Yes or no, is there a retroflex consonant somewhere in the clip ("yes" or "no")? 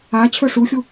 yes